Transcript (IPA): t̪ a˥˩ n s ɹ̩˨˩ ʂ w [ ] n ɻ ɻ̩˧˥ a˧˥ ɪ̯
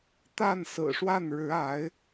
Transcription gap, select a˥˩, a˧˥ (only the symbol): a˥˩